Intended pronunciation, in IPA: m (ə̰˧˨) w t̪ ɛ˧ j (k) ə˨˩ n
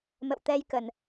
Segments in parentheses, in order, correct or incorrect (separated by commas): correct, correct